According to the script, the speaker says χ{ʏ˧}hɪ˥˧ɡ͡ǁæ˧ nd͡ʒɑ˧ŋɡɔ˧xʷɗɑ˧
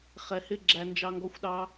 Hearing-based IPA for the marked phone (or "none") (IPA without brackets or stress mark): ɛ˧